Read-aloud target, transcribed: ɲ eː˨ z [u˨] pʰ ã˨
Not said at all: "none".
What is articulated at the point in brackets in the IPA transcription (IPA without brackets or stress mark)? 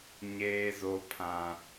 o˨